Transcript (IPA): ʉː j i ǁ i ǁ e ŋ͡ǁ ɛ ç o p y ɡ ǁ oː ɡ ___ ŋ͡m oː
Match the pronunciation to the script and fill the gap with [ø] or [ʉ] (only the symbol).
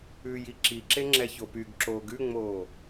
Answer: ʉ